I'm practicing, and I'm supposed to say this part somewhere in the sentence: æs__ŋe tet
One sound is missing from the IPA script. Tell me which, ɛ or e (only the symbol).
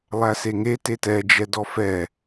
e